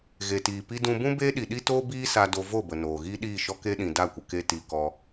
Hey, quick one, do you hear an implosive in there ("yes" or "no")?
yes